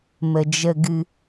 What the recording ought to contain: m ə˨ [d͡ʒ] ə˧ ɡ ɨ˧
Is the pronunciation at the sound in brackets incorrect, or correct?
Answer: correct